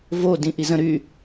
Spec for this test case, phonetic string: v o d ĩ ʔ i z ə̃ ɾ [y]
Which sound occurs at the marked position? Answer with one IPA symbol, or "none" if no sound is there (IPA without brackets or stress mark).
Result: y